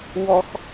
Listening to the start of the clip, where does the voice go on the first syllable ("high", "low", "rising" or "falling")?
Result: high